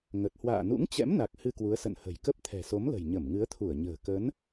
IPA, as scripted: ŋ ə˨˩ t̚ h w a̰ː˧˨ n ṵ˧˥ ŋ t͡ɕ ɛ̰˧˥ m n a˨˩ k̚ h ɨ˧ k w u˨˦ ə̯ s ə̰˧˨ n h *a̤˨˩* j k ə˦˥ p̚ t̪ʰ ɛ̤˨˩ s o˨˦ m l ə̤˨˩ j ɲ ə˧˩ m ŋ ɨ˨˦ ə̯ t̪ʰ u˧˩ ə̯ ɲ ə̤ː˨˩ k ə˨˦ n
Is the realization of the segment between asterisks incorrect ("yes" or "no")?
yes